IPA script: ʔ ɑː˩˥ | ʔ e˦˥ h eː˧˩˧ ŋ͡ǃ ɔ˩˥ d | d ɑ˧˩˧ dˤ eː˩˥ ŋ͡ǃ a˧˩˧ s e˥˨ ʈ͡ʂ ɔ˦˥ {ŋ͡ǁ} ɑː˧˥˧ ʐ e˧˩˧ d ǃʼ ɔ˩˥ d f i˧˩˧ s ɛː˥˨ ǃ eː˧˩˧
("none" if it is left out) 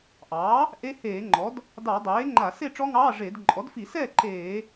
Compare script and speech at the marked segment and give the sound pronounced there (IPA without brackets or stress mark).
ŋ